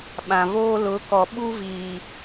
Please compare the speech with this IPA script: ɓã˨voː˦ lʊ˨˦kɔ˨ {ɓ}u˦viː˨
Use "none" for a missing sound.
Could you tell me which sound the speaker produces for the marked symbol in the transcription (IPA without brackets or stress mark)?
ɓ